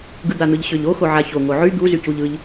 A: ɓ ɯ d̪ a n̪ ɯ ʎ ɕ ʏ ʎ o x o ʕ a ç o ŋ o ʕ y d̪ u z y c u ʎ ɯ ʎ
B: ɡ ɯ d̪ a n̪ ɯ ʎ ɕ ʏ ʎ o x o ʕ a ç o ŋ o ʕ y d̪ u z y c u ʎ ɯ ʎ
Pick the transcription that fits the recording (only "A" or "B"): B